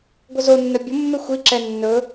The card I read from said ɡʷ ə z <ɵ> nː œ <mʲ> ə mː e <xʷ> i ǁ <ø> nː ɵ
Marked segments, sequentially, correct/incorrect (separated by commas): incorrect, incorrect, correct, incorrect